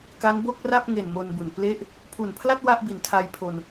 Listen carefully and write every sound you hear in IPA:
k a˦˥ n b o˥˩ k̚ r a˥˩ p̚ ŋ e˨˩ n m o˧ n b u˨˩ n p l e˥˩ ʔ | pʰ u˨˩ n pʰ l a˥˩ t̚ w a˥˩ ʔ b i˨˩ n tʰ a˧ j pʰ o˧ n

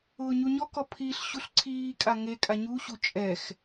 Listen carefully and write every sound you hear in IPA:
ʊː ɲ u ɲ ɔ k ɔ pʰ i ɬ ɕ u ɬ ǀʰ iː kʼ a ŋ e kʼ a ɲ u ɕ u t͡ʃʼ ɛ x

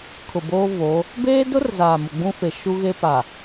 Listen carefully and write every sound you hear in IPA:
kʰ ʊ˨ b oː˦ v oː˨˦ | b eː˦ d ʊ˦ r z aː˨ m ʊ˨ ɡ͡b ũ˦ f e˨ ʃ u˦ ɣ e˦ p a˨

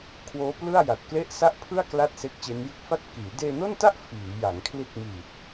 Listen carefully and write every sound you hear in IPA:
kʰ w oː˦˥ p l ɯ˥˩ a̯ j a˨˩ t̚ k l e˥˩ ʔ s a˥˩ ʔ pʰ ɯ˥˩ a̯ k l a˥˩ t̚ s e˦˥ k̚ t͡ɕ e˦˥ n j ɯ˥˩ k̚ f a˥˩ t̚ k iː˩˦ d eː˧ n o˥˩ n t a˥˩ ʔ f iː˩˦ j a˩˦ ŋ kʰ l i˦˥ t̚ m iː˨˩ t̚

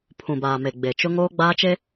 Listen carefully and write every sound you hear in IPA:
pʰ ũ˨ b aː˨ m e˨ ɡ͡b e˨ t͡ʃ ʊ˦ ŋ oː˦ ɡ͡b aː˦ t͡ʃ e˦

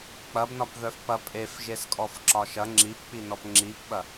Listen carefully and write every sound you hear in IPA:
k͡p ɐ b n ɒ p ð œ f p ɐ pʼ e f ʒ e s kʼ ɔ f ǁ ɒ ʃ ɐ ŋ͡ǁ i p k͡p i n ɔ p ŋ͡ǁ i p ɓ ɐ

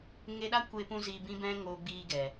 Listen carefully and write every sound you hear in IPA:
ŋ e˧ ɗ a˦ kʷ e˧ p ũ˦ z iː˧ b ĩ˦ b ɛ̃˦ ŋ oː˧ ɡ͡b iː˧ ɡ ɛ˨

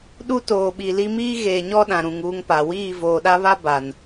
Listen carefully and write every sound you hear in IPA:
ɗ u˦ t oː˨ ɓ iː˨ l i˦ m iː˦ ɣ eː˨ ɲ ɔ˦ ɗ ã˨ ɾ ũ˨ ŋ uː˦ ŋ p a˨ w iː˦˨ v oː˨ ɗ a˦ β a˦ b a˨ n

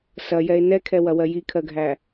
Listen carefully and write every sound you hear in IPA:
s ɐ j ɛ e̯ n ɛ kʰ ɛ w ɐ w ɜ j i kʰ ɜ ɡʱ æ

